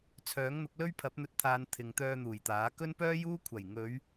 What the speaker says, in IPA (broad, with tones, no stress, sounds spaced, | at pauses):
t͡sʰ œː˨˥ ŋ n̪ ʊ˨˥ k̚ l ɵ˥ ɥ pʰ ɐ˨˥ p̚ n̪ ɵ˧ t̚ t̪ʰ aː˨˧ n t̪ʰ ɪ˨ ŋ t̪ œː˧ n̪ uː˨˩ j t̪ aː˨˥ k ɵ˥ n p œː˥ j uː˥ kʷʰ ɐ˨˩ j ŋ ɵ˨˧ ɥ